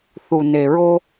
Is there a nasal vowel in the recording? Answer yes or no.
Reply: no